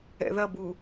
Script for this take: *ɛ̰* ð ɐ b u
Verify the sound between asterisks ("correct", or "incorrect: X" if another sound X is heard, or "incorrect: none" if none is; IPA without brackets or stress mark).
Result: correct